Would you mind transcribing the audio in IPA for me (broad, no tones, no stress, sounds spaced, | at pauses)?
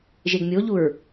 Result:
ʒ e ɡ mʲ o ʎ u ɹ